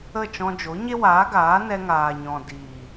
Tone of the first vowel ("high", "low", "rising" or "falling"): falling